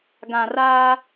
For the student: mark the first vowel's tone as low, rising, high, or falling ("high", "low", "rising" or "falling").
low